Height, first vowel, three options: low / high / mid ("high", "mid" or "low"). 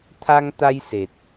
low